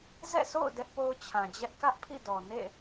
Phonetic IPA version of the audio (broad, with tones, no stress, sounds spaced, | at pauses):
z ɛ̰˦˨ s o̰˦˨ ʊ̯ d ɛ˦ ʔ p o˦ ʊ̯ t͡ɕʰ ã˨ d͡ʑ ɛ˦ ʔ k ä˦ ʔ pʰ ḭ˦˨ d ɔ˨ n ḛ˦˨